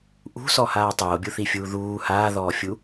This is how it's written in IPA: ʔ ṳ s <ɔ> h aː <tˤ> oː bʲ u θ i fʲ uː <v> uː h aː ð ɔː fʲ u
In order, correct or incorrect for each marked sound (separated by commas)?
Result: correct, correct, incorrect